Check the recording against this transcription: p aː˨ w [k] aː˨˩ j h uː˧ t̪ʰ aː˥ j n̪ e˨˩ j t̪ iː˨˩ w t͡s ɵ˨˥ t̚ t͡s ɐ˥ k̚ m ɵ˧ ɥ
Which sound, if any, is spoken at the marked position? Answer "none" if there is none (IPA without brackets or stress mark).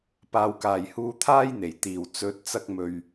k